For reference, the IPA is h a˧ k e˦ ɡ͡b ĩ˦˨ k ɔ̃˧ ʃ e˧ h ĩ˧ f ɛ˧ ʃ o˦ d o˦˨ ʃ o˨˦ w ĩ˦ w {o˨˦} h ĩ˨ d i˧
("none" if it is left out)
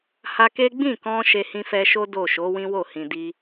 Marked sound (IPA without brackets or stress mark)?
o˦˨